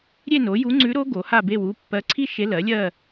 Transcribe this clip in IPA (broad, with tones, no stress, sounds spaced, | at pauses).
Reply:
ɾʲ e˥˧ n o˩˥ j u˧˥ ŋ͡ǀ ʉ˧˥ ɾ o˧˥ ɡ o˩˥ h a˥˧ b e˥˧ w u˥˧ pː ɜ˧˥ ǀʰ i˥ ʃ e˧˥ l ɜ˩˥ lʲ ɜ˥˧